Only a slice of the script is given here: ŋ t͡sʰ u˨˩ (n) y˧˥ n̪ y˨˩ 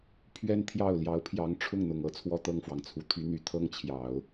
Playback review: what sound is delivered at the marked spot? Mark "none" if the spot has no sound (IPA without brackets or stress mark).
t̪ʰ